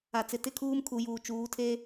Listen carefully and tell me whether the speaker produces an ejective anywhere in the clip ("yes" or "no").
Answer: no